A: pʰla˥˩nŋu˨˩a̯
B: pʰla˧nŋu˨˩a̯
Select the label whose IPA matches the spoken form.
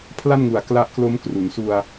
A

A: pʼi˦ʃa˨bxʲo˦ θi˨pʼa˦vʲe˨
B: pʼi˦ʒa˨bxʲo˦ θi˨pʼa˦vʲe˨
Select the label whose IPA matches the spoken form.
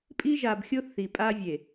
B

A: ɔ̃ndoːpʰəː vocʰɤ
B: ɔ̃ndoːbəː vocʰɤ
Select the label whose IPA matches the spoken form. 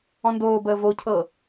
B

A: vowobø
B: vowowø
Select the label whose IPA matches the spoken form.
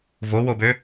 A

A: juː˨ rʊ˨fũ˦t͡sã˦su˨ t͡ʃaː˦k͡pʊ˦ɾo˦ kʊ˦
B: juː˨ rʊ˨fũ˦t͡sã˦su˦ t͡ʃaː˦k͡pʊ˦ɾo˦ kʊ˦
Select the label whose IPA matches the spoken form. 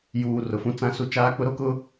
B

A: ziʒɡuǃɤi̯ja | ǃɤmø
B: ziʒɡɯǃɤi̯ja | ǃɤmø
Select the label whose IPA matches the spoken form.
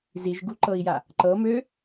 A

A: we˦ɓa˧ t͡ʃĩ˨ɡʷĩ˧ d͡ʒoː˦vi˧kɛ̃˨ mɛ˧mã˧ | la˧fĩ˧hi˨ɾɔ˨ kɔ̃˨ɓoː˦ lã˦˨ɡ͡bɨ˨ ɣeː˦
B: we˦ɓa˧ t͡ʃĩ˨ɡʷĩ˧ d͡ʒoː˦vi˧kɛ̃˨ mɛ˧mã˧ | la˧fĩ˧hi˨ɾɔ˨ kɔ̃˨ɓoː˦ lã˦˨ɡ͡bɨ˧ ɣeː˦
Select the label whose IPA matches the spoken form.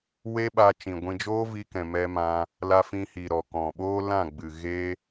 A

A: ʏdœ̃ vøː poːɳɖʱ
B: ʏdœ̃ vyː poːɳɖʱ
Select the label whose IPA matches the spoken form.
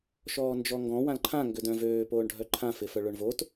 A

